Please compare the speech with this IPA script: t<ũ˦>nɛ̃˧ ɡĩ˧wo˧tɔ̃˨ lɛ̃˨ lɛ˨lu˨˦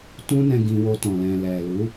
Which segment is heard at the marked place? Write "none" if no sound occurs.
ũ˦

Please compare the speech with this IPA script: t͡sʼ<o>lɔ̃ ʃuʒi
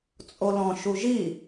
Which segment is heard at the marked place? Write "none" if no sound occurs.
o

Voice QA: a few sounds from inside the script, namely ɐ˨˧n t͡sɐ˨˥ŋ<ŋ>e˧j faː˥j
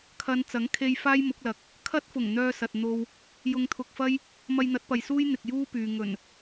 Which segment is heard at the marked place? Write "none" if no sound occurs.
kʰ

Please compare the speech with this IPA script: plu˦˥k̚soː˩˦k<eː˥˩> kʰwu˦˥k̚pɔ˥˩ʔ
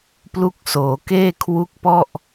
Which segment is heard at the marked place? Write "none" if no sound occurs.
eː˥˩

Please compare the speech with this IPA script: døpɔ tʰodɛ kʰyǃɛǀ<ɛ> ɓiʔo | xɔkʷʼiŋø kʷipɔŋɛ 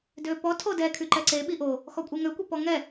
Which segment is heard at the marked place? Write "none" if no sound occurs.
e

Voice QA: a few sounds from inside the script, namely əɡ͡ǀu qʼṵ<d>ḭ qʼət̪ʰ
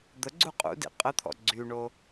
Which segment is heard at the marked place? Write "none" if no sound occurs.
d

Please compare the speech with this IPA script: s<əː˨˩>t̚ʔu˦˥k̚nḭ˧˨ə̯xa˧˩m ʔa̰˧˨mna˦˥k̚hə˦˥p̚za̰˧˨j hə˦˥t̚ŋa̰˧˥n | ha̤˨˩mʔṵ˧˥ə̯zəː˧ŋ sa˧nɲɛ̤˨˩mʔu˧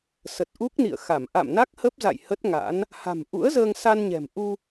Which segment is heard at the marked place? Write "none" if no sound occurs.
ə˨˩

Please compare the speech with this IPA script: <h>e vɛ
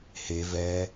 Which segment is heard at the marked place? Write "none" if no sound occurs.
h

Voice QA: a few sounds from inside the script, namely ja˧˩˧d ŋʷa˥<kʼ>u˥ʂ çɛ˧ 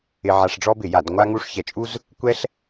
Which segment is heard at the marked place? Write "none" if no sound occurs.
ŋ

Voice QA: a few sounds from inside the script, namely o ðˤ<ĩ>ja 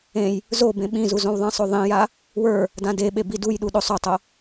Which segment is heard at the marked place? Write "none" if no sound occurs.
ĩ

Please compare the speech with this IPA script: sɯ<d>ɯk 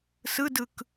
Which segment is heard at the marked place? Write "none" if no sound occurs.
d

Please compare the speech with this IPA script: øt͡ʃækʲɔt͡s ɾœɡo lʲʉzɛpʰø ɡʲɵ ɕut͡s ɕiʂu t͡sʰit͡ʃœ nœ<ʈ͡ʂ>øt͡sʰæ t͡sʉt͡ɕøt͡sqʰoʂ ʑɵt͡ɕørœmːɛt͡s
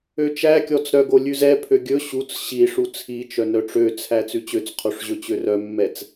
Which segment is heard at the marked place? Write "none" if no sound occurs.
ʈ͡ʂ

